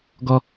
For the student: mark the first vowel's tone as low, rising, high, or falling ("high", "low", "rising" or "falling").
high